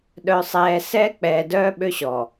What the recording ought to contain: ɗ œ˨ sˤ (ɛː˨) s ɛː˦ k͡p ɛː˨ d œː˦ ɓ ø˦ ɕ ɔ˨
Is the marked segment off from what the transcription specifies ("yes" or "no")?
no